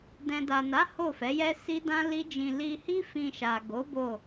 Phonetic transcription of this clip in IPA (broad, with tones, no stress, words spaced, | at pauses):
dɛ̃˨da˨na˨˦ ho˦˨fɛ˨˦jɛ˦ si˦dã˦li˦d͡ʒĩ˧ li˧hi˦ fĩ˧ʃa˨ ɡo˨˦ bo˦˨